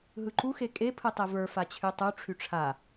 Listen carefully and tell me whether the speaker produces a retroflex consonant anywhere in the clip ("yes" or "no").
yes